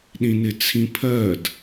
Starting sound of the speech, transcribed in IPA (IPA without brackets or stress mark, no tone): ɗ